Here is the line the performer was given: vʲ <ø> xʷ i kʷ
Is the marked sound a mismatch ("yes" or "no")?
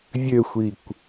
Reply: no